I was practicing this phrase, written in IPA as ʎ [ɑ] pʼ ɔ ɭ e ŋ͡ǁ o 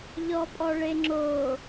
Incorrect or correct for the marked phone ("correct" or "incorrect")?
incorrect